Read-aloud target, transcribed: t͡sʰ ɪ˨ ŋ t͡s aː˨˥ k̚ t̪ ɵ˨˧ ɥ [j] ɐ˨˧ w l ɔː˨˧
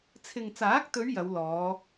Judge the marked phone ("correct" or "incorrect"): correct